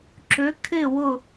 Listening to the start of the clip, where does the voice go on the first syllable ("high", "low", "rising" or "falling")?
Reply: rising